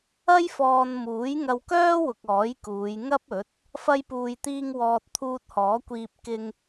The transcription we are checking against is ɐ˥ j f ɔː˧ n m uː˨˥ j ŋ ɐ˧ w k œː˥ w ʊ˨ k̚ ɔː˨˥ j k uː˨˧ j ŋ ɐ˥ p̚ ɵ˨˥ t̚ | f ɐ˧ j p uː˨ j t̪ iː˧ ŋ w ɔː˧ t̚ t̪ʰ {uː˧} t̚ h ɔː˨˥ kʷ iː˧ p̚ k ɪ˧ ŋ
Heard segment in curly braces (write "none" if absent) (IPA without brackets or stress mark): uː˧